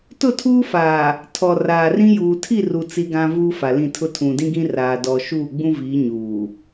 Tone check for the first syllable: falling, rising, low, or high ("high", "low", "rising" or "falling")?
falling